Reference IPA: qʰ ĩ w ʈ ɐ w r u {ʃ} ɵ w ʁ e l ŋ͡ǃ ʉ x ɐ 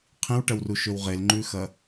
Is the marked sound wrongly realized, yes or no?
no